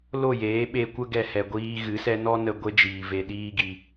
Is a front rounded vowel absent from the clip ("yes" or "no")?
yes